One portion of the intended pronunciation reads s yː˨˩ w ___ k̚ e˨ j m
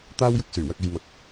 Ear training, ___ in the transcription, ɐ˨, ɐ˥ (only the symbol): ɐ˨